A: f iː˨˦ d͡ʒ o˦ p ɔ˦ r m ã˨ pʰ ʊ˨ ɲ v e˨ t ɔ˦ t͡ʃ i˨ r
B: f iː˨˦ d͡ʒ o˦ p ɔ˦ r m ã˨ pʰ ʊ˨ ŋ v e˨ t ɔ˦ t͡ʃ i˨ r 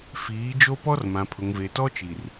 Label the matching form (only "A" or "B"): B